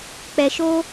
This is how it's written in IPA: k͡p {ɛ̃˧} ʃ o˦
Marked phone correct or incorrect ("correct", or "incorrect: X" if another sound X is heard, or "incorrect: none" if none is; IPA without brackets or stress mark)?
incorrect: ɛ˧